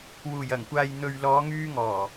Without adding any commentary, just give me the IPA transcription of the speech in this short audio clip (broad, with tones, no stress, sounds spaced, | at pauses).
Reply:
w uː˨˩ j ɐ˨˩ ŋ kʷ aː˨ j n̪ ɵ˨ ɥ l ɔː˨˧ ŋ yː˧ ŋ ɔː˨˩